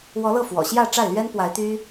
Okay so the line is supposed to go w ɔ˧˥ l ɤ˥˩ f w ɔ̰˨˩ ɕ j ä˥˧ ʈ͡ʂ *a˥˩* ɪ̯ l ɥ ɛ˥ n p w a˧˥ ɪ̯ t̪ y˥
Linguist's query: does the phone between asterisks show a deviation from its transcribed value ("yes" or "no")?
no